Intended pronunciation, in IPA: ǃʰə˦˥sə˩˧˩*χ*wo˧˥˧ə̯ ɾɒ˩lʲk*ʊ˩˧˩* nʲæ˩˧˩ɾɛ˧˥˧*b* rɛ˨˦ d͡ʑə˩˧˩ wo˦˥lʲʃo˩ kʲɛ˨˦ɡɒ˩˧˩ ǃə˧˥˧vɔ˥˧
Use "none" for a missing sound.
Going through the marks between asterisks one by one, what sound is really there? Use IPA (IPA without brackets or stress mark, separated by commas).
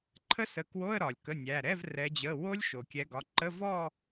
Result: k, ə˩˧˩, v